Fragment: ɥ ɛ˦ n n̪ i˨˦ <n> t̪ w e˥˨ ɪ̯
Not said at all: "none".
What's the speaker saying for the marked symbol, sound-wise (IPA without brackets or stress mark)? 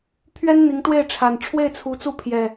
ŋ